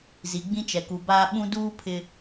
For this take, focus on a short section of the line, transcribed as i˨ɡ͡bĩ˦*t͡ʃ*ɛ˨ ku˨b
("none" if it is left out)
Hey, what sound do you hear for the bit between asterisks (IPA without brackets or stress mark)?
t͡ʃ